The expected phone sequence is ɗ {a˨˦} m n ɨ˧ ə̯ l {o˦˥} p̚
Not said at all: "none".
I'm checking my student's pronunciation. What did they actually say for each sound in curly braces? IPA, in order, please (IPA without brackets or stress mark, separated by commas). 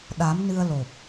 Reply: a˨˦, o˨˩